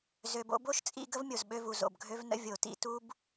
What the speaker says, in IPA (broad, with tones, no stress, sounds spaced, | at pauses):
z ø˩ b o̰˧ b o˥ ʃ t͡sʼ ḭ˧ ɡ ə˥ v mʲ o˩ z ɓ ø˧ v u˩ z o̰˩ b ɡʱ ø˥ v n ə̰˥ vʲ o˩ t ḭ˧ t u˥ b